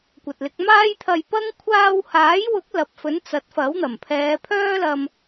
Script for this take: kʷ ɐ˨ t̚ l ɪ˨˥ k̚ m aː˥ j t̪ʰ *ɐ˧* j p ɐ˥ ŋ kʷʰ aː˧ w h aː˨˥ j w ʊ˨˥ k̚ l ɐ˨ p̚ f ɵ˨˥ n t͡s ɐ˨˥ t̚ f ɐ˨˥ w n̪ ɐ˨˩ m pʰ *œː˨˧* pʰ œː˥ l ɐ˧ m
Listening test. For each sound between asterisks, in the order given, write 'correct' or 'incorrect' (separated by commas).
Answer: correct, incorrect